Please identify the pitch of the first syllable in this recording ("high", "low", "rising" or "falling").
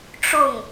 falling